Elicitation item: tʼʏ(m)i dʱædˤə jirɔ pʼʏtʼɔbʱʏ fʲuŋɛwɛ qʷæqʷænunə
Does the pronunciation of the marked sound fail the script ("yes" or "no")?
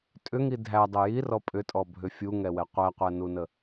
yes